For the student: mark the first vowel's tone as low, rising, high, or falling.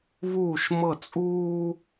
falling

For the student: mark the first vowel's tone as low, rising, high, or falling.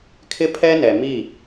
high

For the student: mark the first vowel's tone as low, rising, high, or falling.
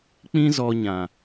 high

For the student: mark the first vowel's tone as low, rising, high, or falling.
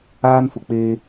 high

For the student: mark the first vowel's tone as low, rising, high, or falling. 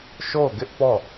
falling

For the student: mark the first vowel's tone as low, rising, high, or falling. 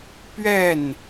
falling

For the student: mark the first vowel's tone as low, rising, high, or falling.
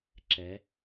rising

